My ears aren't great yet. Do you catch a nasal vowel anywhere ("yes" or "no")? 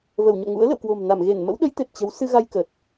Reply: no